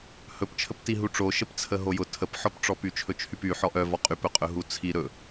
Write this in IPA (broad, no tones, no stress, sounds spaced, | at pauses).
h ɵ p t͡ʃʰ ə p t i ɦ u ʈ͡ʂ o ʃ ə p t͡sʰ ə ɦ o j ʊ tʰ ə p ħ ɔ p ʈ͡ʂ ɔ p y t͡ʃʰ ɵ t͡ʃʰ y p y ħ ɔ ʔ œ v ɔ qʼ y p ɵ qʼ ɵ ɦ u t͡sʰ i ɾ ɵ